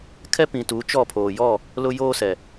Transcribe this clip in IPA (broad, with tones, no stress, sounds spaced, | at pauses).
kʰ ɛ˦ p ĩ˨ t uː˨˦ t͡ʃ ɔ˦˨ pʰ oː˨ j ɔ˦˨ | l ʊ˦ j oː˦ s ɛ˨